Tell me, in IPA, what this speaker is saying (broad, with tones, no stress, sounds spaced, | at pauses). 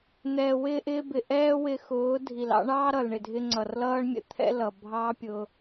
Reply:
n̪ ɛː˨ w ɪː˧ ʔ ɪː˧ b ɪ˨ ʔ ɛː˦ w ɪ˧ x ʊː˨˦ dʱ i˨ l ɑ̰˦ ɳ ɑː˦ ɾ ʌ˨ l ɳ ɪ˨ dʱ ɪ˧ ŋ͡ǀ ʌ˨ r l ʌː˦ ɳ mʲ ə̰˧ t̪ʰ ɛ̰˦ l ʌ˨ bʱ ɑː˦ pʲ ʊ˧